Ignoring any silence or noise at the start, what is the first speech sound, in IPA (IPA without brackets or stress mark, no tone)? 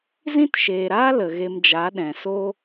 z